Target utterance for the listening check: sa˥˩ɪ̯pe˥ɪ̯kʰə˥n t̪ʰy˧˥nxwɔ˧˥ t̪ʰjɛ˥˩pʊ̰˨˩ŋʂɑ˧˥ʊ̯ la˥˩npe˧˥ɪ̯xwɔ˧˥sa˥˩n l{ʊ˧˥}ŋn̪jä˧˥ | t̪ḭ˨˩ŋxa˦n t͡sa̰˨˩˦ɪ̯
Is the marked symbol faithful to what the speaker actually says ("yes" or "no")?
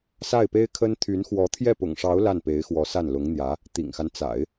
yes